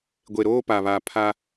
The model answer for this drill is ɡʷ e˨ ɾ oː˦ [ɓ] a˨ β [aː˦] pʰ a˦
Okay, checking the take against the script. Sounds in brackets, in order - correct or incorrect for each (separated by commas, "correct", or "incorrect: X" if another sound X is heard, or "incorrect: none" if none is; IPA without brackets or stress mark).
incorrect: p, incorrect: aː˨